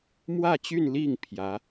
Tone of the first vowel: falling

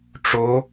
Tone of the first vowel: rising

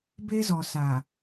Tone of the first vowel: high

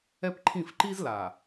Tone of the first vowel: high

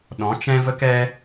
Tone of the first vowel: rising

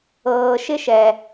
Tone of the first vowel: low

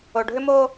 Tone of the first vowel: low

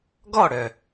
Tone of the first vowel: falling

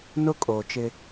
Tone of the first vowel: high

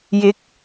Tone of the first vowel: rising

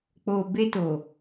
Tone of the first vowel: low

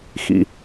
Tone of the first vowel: low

